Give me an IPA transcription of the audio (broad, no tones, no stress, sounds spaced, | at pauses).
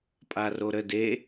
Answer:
pʼ a r o ɾ ə d e